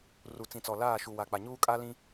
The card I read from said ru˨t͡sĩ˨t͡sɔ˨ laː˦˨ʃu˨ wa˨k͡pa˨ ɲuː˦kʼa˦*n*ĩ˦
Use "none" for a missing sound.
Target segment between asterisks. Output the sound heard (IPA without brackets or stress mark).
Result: l